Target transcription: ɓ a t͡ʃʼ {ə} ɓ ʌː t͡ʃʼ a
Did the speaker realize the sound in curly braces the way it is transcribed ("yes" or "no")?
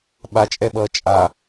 no